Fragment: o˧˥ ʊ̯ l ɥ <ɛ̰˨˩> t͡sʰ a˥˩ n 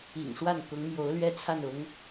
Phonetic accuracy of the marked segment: incorrect: ɛ˥˧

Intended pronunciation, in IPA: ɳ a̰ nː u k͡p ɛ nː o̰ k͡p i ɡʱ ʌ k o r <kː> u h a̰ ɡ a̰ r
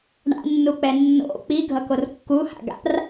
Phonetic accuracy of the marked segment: correct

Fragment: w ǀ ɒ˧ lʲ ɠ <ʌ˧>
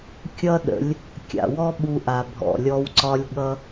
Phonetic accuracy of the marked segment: correct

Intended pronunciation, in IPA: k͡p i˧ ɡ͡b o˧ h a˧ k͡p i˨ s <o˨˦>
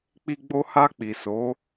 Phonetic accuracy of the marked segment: correct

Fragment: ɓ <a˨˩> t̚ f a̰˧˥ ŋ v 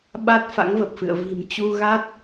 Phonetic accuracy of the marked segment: incorrect: a˦˥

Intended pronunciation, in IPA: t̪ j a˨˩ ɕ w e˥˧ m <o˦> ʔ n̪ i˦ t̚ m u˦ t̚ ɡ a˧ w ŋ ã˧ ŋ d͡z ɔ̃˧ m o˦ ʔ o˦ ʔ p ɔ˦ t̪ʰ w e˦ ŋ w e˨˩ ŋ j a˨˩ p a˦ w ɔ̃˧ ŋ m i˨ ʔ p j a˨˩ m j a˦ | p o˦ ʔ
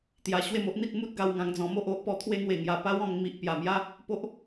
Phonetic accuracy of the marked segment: correct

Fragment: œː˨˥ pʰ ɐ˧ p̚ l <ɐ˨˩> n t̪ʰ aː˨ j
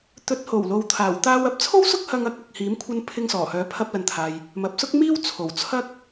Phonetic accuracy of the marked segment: incorrect: ɐ˨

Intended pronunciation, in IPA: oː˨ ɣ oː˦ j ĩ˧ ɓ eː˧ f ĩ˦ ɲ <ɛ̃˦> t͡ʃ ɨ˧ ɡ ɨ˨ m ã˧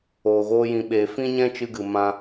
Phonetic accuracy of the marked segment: correct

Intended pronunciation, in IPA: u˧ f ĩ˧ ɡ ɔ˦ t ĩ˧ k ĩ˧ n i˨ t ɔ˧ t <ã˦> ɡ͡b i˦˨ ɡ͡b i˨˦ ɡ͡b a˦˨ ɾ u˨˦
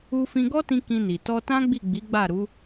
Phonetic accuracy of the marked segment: correct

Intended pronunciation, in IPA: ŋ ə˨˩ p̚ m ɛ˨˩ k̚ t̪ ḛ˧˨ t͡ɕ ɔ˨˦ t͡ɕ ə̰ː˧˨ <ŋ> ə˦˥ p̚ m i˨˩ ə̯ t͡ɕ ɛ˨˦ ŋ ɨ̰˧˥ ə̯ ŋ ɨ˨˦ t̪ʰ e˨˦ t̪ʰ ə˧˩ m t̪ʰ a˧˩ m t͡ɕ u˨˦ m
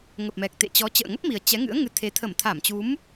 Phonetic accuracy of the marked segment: correct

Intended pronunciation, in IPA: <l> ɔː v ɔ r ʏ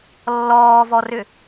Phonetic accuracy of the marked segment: incorrect: lː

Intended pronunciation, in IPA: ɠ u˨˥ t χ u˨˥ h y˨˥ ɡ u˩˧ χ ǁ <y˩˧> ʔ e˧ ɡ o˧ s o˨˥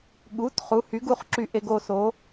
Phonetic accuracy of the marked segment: incorrect: y˧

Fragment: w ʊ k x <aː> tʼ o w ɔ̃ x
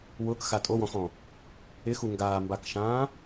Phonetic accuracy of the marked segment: incorrect: a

